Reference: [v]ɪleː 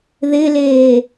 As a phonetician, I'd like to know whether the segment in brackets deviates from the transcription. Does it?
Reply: yes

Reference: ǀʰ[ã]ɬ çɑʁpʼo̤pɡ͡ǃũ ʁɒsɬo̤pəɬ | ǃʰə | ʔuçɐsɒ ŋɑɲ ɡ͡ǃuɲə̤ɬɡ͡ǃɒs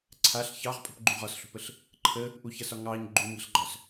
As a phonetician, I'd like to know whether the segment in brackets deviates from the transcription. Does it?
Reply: yes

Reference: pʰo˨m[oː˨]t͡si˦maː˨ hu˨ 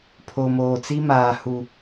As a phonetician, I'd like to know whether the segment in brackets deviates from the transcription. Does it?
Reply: no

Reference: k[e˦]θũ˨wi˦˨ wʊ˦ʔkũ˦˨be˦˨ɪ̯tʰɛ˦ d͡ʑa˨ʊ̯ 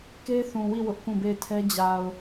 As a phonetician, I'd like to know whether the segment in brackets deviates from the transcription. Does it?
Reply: no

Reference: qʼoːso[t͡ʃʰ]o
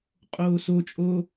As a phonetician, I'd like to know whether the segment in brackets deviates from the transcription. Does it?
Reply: yes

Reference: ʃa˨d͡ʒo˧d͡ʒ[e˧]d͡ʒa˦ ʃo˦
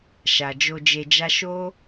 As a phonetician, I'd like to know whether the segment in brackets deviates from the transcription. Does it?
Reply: no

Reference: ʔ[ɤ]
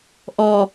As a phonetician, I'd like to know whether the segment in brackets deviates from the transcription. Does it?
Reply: yes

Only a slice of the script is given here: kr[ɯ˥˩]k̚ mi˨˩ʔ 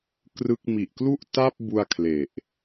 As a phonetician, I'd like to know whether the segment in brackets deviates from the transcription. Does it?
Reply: no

